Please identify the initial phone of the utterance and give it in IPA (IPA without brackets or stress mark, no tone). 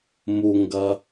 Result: m